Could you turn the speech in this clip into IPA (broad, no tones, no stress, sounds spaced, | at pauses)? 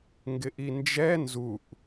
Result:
ŋ ɡ ɪ ʔ i n d͡ʒ ɛ n z u ʔ